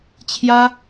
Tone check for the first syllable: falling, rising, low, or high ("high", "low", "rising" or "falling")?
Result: high